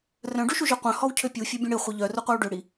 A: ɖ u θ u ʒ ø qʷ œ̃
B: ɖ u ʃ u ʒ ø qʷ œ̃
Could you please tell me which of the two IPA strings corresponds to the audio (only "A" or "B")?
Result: B